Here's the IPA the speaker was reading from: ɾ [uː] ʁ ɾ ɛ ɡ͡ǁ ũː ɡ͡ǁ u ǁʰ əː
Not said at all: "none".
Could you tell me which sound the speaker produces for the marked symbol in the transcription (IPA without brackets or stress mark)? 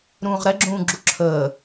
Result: ũː